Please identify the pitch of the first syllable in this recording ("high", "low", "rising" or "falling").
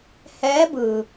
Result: rising